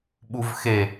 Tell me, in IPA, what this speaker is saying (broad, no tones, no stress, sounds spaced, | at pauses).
ɓ u v x e